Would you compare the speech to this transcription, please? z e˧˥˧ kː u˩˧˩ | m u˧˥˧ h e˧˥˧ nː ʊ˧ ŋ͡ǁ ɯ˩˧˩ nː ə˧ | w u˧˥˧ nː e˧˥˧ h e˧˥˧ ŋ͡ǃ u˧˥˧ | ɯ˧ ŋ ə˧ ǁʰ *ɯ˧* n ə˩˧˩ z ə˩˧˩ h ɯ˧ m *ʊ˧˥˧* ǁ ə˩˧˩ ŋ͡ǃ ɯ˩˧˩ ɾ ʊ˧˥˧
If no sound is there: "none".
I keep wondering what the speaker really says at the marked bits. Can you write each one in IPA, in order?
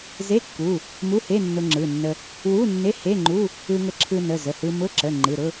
ɯ˧, ʊ˧˥˧

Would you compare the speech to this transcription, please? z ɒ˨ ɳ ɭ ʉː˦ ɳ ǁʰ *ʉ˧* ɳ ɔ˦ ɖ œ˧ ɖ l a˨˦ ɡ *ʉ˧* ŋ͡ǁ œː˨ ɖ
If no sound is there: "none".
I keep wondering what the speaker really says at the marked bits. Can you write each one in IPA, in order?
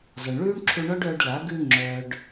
u˧, ʉ˧

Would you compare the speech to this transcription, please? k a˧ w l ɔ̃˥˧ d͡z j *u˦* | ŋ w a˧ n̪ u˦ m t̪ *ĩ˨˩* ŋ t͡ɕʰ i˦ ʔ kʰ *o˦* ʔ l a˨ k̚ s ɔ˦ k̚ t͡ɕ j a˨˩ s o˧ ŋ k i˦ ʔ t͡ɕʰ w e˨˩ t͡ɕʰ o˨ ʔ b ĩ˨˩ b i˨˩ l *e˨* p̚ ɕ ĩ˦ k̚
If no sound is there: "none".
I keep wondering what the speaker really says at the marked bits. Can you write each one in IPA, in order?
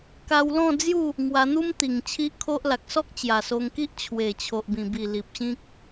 u˥˧, i˨˩, o˦, i˨

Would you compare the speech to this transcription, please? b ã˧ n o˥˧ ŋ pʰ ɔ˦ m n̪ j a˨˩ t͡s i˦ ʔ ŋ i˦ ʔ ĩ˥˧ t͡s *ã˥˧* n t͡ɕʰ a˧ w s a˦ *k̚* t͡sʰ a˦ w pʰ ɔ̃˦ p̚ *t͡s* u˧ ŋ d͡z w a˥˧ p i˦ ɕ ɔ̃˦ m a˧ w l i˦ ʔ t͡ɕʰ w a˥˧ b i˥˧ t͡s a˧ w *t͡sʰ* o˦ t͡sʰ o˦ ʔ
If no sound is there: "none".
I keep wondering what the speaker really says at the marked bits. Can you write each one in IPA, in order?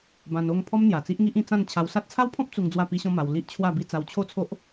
ã˥˧, t̚, t͡s, t͡ɕʰ

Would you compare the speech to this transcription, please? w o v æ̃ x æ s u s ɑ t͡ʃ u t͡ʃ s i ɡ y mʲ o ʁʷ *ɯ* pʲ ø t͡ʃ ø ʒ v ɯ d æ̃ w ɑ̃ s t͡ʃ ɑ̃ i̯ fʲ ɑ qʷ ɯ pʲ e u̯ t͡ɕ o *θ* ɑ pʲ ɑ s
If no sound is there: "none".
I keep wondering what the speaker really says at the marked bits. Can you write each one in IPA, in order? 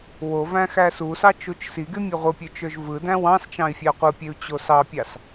ɯ, s

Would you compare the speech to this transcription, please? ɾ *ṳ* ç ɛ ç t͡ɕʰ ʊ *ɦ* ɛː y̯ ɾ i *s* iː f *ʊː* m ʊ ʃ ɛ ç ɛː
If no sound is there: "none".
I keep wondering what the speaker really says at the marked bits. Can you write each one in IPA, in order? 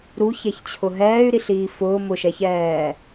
u, ɦ, ɬ, ʊː

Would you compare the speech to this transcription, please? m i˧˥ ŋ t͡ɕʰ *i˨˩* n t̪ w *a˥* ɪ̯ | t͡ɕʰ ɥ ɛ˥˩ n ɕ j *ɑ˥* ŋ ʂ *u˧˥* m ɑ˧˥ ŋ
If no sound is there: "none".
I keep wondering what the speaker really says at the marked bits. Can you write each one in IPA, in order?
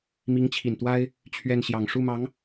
i˨˩, a˥, ɑ˨˩, u˥˩

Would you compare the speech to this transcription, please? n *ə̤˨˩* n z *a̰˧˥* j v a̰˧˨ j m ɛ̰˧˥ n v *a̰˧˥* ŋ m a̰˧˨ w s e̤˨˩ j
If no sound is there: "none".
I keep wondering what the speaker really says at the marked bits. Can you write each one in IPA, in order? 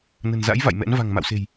ə̤˨˩, a̰˧˥, a̤˨˩

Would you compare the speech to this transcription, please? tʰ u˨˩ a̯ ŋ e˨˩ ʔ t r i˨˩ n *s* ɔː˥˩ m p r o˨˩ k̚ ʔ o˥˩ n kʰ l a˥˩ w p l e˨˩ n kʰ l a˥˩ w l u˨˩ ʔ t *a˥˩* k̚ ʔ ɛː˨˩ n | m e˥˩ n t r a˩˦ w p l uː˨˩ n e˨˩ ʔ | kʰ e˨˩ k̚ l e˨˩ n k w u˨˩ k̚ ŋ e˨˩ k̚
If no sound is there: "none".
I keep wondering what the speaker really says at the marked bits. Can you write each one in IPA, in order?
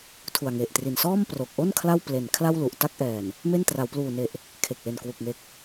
s, a˥˩

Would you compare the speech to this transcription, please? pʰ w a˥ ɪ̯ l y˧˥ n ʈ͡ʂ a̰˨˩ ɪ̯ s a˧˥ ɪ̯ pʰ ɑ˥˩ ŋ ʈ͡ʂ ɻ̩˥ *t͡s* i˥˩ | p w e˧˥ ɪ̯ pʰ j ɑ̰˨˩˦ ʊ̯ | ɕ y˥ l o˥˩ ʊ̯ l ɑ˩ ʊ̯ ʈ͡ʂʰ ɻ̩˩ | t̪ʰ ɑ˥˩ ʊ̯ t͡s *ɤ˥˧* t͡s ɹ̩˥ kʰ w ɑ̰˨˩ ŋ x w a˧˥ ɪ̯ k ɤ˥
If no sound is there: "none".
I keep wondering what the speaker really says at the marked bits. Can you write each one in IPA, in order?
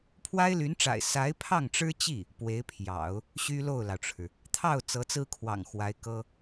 t͡ɕ, ɤ˧˥

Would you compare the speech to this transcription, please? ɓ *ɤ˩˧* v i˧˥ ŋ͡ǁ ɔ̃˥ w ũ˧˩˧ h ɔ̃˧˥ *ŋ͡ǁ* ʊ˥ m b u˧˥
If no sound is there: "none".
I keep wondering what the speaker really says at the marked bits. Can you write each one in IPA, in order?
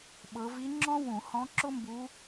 ɤ˩˧, ǁ

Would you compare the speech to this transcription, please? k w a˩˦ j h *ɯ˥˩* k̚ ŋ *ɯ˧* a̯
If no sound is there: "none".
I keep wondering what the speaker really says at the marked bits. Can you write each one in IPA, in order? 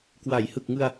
ɯ˨˩, ɯ˧

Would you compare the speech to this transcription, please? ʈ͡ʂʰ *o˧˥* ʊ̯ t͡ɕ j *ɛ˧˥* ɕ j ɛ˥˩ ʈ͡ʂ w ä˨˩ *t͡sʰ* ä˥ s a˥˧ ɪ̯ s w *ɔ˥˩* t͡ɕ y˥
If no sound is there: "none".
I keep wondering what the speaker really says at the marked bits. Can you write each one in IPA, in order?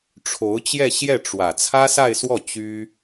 o˧˥, ɛ˥˧, t͡sʰ, ɔ˥˩

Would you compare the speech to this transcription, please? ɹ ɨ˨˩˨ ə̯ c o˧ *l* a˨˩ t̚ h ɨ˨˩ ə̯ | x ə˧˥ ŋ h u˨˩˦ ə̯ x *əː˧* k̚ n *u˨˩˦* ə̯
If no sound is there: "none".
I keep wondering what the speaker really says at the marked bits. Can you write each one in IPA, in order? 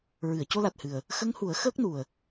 l, əː˦˥, u˨˩

